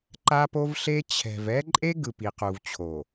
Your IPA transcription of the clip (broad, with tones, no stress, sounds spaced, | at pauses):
ǃ a˦ p o˦ v ɬ e˦ t͡ɕʰ ɛ̤˨ v ɛ˦ ǃʼ e˦ ɡ ɯ˨ p i˨ q u˨ v t͡ɕʰ o˨